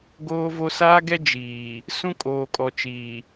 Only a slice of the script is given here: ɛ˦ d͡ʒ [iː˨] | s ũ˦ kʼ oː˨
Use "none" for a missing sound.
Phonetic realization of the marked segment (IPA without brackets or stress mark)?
iː˨